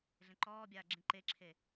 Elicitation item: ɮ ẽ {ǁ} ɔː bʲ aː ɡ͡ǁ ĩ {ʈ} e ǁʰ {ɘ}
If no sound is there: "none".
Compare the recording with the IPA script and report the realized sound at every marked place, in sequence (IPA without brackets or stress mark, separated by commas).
ǃ, ǃ, e